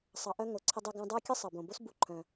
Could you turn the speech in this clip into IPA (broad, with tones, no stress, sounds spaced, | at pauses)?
sˤ ɑ˨ ʔ œ˦ ŋ o˩ ǀʰ ə˦ dˤ e˦ ɡ œ̃˦ dˤ ə˞˥ kʲ ə˥ sˤ ɑ˩ b õ˩ b o˦ s b u˨ ǃʰ œ̃˩